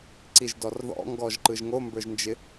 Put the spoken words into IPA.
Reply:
ǀ i ʒ d ɔ r ð ɔ̰ ŋ ɡ ɔ ʒ ǃ ɯ ʒ ŋ o m b ə˞ ʒ n d͡ʒ ɪ

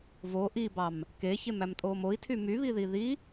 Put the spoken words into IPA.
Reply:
v o ʔ i b ɑ m | k e ç e m æ m tʼ oː m o i̯ tʰ y m y β i ð i ð i

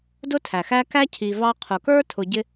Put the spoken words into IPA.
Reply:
d ʊ˦ tʰ æ˨ x æ˦ k æ˦ cʰ i˧ v ɑ˦ qʰ ʊ˨ k ə˞˦ tʰ ʊ˧ ɟ ɪ˦

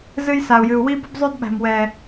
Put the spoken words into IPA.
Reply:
z ɨ˦ j s a˨ u̯ j ɨ˨ u̯ w i˦ b ə˦ b zˤ ø˦ d ɓ æ̤˨ m w ɛ˨

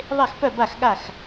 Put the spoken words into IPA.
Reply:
ðˤ e˥˨ x p œ˥˨ b a˥˨ x ɠ a˥˨ x

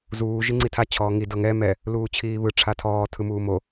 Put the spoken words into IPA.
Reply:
z uː ʒ i ŋ͡ǀ i tʰ a t͡ɕʰ ɔː ŋ i d ɤ ŋ ɛ m ɛ | l uː t͡ɕʰ iː β ɯ ʈ͡ʂʰ a tʰ ɔː tʰ ɯ m uː m o

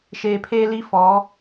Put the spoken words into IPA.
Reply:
ʃ eː˨ pʰ eː˦ l i˦ f ɔ˨˦

